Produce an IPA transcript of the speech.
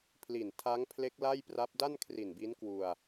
pʰ l i˨˩ n tʰ a˦˥ ŋ pʰ l e˦˥ k̚ l a˥˩ j p r a˦˥ p̚ d a˥˩ n kʰ r i˨˩ n b i˦˥ n k w u˧ a̯

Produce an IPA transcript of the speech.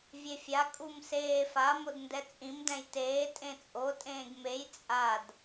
vʲ e fʲ a kʼ u m s eː f a m o d n d ɛ t͡sʼ ĩ m d ɛ̃ j t eː tʼ ẽ t͡sʼ o tʼ ẽː ɡ m e j t͡sʼ a d

